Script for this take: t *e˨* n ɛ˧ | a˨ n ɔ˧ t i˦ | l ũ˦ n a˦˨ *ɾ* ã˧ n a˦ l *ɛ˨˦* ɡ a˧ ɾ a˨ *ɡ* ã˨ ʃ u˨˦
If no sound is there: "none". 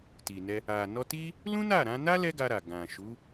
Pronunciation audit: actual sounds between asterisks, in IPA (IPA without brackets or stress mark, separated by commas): i˨, ɾ, ɛ˦, ɡ